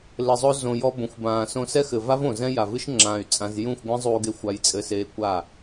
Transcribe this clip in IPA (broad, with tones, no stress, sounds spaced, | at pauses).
l ɘ˨ zˤ o˧ z õ˨ j ɔ˧ b õ˨ xʷ b ãː˨ s õ˧ s ɛ˦ x ɘ˨ v a˦ v õ˨ z ɛ̃˦ j a˨ v ɨ˦ ʃ ŋ͡ǁ ãː˨ y̯ t͡sʼ ã˧ z j ũ˦˨ xʷ ɡʷ ɛ̃˦ zˤ uː˧ ɡ e˧ xʷ a˧ j t͡sʼ ɘ˧ s eː˧ kʷ a˦˨